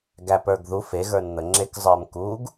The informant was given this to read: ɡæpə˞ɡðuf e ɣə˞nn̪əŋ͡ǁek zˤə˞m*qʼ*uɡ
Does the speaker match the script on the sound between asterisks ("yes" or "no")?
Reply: no